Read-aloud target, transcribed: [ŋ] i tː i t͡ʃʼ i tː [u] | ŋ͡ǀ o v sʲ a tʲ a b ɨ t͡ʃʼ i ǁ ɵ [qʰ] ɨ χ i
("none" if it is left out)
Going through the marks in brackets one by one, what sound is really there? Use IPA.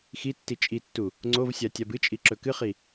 x, u, k

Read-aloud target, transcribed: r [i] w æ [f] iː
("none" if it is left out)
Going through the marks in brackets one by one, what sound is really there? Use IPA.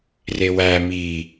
e, m

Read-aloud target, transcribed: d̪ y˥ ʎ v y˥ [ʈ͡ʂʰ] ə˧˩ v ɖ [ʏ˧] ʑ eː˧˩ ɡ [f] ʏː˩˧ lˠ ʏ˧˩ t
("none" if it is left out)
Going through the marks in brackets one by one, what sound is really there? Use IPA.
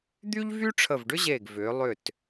ʈ͡ʂʰ, ʏ˥, v

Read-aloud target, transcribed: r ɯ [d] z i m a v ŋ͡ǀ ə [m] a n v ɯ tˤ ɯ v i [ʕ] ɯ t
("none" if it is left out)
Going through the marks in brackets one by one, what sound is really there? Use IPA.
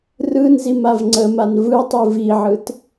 n, m, ʕ

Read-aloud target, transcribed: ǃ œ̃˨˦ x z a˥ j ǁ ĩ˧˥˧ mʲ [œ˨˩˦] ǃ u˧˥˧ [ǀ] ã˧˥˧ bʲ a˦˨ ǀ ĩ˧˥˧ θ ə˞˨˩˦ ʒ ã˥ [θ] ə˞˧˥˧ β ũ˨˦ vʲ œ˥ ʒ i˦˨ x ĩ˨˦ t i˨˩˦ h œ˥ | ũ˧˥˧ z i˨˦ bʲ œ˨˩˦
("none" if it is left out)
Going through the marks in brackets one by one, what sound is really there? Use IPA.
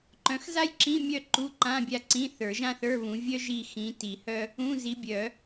œ˦˨, ǃ, θ

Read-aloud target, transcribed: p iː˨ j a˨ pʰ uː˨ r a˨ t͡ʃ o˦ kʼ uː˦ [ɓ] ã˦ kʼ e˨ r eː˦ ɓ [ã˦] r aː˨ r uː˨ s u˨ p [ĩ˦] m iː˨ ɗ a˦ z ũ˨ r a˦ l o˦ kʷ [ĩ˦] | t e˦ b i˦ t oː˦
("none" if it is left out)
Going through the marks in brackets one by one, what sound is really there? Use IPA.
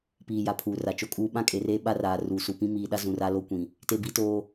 ɓ, a˦, ĩ˦, ĩ˨

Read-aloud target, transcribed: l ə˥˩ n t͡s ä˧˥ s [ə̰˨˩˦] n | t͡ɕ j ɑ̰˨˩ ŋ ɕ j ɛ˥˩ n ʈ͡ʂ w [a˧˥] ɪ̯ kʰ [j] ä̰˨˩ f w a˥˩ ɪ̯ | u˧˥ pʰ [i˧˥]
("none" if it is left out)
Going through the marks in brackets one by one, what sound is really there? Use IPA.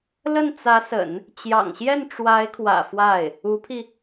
ə̰˨˩˦, a˧˥, w, i˧

